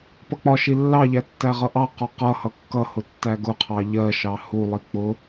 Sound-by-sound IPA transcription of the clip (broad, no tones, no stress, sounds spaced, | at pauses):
p ʌ k͡p ɒ ʃ i lː ɑ ʎ æ tː æ ʁ ʌ ʔ ɑ q ɒ q ʌ h ʌ kː ʌ h ʊ tː æ ɡ ʊ qʰ ɑ ʎ ɜ ʃ ɑ h u lˠ i k͡p ʊ